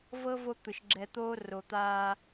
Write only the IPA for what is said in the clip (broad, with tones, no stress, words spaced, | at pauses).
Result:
vɤ˦vo˧ t̪ɯ˨ʃɡ͡ǁɛ˧t̪oː˦ ro˨t̪aː˧